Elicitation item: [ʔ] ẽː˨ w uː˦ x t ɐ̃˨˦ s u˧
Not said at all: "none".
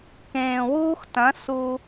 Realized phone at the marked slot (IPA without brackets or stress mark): k